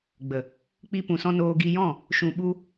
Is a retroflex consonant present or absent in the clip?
absent